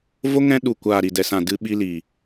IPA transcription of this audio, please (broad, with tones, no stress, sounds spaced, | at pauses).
v o˦ ŋ ɛ̃˦ ɗ u˨ kʷ aː˨ ɾ i˨ d ɛ˨ s ã˨ d ɨ˧ ɓ i˧ l iː˨